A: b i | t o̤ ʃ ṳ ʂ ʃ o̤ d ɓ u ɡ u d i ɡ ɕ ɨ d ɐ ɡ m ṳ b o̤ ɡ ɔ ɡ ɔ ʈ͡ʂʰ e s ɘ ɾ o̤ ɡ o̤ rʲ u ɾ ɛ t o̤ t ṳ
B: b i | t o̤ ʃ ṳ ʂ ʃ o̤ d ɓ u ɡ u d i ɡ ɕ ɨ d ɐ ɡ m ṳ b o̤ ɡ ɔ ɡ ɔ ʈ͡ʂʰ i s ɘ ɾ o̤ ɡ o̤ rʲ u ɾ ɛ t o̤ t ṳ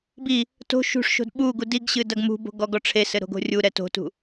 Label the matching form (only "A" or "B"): A